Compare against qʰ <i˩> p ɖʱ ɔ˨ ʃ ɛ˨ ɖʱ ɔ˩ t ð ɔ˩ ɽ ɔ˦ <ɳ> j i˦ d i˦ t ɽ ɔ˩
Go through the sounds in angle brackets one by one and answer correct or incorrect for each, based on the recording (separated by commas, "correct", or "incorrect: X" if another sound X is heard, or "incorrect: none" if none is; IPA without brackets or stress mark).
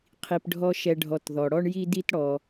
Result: correct, correct